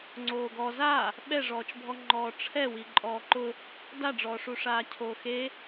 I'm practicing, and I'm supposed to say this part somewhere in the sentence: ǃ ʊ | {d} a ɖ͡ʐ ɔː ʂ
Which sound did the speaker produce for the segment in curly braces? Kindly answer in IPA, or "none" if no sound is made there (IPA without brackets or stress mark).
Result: d